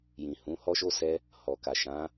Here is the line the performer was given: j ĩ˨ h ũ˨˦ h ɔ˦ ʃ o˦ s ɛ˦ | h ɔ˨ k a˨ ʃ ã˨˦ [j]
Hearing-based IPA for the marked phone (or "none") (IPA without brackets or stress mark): none